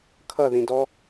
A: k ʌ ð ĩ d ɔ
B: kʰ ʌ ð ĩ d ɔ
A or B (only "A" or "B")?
B